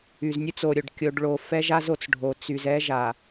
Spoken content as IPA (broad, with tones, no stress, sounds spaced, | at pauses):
y˨ z nʲ u˦ t͡s o˨ ɾʲ o˨ ɖ kʲ o˨ ɖ ɭ o˨ f ɛ˦ ʒ a˦ z o˨ t͡s ɖʱ o˨ t͡s y˨ z ɛ˦ ʒ a˨